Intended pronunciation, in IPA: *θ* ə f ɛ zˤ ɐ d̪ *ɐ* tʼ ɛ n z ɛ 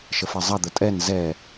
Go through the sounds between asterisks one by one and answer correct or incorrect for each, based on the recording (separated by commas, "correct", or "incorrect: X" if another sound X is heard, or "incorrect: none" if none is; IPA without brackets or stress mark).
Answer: incorrect: ʃ, incorrect: ə